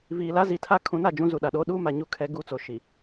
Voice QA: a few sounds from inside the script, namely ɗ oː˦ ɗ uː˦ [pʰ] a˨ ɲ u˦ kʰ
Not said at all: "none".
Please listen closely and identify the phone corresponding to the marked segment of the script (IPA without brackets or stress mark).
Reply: m